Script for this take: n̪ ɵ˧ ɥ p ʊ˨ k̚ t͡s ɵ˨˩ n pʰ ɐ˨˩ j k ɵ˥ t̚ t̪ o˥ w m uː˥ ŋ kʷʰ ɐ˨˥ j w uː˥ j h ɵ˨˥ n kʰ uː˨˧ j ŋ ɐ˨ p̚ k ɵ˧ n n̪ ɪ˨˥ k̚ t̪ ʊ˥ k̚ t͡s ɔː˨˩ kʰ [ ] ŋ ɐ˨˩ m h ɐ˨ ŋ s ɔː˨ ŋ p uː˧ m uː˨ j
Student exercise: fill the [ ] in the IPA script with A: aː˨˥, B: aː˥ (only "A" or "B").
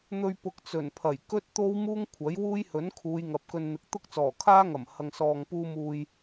B